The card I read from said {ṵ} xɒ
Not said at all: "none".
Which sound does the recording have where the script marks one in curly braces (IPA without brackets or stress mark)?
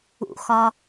ṵ